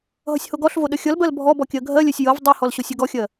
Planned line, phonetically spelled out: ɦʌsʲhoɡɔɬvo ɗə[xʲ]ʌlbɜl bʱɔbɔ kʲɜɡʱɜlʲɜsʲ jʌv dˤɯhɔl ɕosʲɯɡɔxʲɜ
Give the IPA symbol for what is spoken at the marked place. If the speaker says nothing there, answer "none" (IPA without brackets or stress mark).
xʲ